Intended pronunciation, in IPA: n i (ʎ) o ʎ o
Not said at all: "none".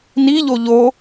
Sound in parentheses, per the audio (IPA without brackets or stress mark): ʎ